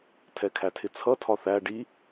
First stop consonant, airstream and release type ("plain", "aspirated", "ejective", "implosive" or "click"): aspirated